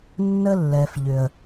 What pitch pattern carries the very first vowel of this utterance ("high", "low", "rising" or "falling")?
high